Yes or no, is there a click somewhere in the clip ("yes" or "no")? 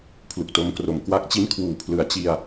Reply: no